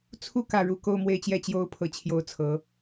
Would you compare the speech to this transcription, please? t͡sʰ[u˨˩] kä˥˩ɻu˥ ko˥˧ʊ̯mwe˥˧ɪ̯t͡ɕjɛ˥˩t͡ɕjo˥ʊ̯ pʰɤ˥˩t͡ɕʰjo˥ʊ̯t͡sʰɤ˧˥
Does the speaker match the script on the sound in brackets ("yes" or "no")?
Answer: no